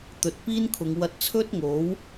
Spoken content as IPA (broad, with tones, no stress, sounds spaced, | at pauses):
t̪ ɵ˨˥ t̚ p iː˥ n kʰ ʊ˨˧ ŋ w ɐ˧ t̚ t͡sʰ ɵ˥ t̚ ŋ o˨˥ w